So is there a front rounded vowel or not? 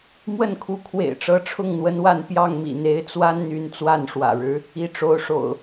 yes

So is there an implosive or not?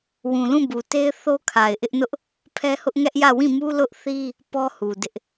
no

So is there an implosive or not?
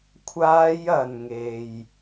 no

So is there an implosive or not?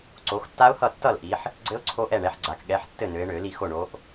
yes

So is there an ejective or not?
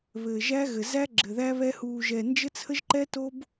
no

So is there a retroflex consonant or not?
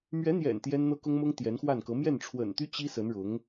yes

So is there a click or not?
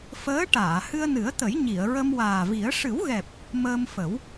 no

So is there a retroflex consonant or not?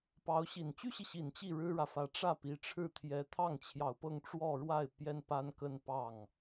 yes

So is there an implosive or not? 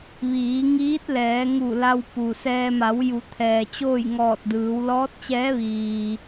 no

